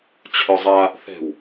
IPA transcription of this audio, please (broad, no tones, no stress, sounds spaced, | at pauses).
t͡ɕʰ œ zˤ a | θ ɛ̤ w